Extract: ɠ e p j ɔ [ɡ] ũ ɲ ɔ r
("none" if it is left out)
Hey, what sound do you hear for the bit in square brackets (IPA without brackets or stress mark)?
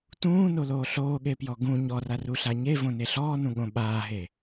ɡ